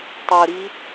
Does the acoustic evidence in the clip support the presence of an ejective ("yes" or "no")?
no